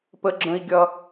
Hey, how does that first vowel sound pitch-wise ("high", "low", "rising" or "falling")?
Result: high